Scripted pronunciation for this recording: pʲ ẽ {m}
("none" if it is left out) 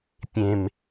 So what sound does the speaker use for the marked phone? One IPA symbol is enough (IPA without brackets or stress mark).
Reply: m